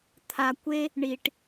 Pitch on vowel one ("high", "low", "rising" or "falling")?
low